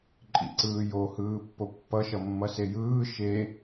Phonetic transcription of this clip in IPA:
ǃʼ ḭ ǀ ɯː j o h ɯː pː o pː ʌ ʃ ʌ mː ʌ s e j ɯː ʃ e

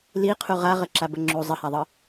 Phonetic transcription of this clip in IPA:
l i qʰ u ʁ a ʁ ə ǁ a b ə ŋ͡ǁ u zˤ ə h a ðˤ ɤ

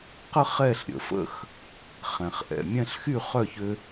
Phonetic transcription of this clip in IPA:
q ə˦ χ ɛ˦˨ ɬ ɾʲ ə̰˨ f ə̰˦ x | χ ɛ̃˨ χ ʔ ɛ̰˨ mʲ ɛ̃˦ ɬ x y˦˨ χ œ˦˨ ç ø˧

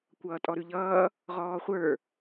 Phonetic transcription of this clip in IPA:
kʷ ʌː tʼ ɔ ɾ ʉ ʎ ʌː | ʁ ɔː χʷ ə˞

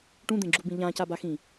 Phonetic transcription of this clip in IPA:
ʈ ũ d̪ ẽ ɡ͡ǁ u b ĩ ʎ ã c a b a x ĩ

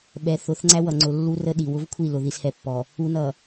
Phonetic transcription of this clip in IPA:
ɓ ɛ˨ θ ʊ˨˦ θ ŋ͡ǀ æ˦ w ʌ˨ ŋ͡ǀ ʊ˨ lː u˦ r ə˦ ɗ i˨ w ʊ˦ v kʷʰ i˦˨ l ʊ˨ ð i˨ s h ɛ˨ pː ɔ˨ | u˨ n ʌ˨

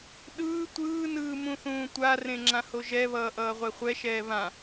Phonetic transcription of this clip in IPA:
ɗ ɯː tʷ ɯː n ɯː m ũ θ ũː tʷ a r ẽ ŋ͡ǁ ã h o ʒ ɛ β ʌː ʔ ʌː ʁʷ e χʷ ɛ ʃ ɛː β ã

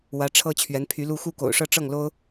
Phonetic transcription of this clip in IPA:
w ä˧˥ ʈ͡ʂʰ ɤ˥ t͡ɕʰ ɥ ɛ˧˥ n pʰ y˧˥ l u˥ x u˥˩ k o̰˨˩ ʊ̯ ʂ ɤ˥ ʈ͡ʂ ɤ˥˩ ŋ l o˥ ʊ̯

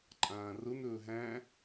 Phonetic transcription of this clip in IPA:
ǃʼ ãː r ʊ n ɵː ɦ æ̃

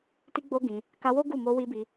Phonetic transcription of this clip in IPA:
t i˧ ɡ͡b o˧ ɡ ĩ˧ | k a˧ w o˦ ɡ u˦˨ m o˧ w i˧ b i˧

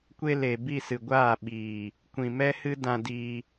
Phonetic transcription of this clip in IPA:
kʷ e˧ l e˨ b i˦˨ s ɨ˨ ɡʷ aː˦˨ ɓ iː˨ | kʷ ĩ˨ m ɛ˦ h ɨ˦ d ã˧ d iː˧

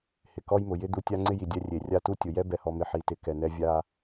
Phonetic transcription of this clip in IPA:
h ɪ˨ k ɔ˦ j m ʊ˨ j ɪ˦ d̪ u˨ tʲ a˦ ŋ͡ǀ ɪ˦ j i˨ dʲ ɛ˦ rʲ e˨ rʲ a˦ t u˦ tʲ ʊ˨ j ɛ˦ b ɛ˨ h ɔ˨ m ɪ˨ ħ i˨ t ɪ˨ k ɛ˨ n ɛ˦ vʲ a˦

